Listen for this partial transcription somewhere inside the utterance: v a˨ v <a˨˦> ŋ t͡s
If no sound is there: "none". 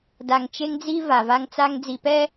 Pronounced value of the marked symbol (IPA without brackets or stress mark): a˦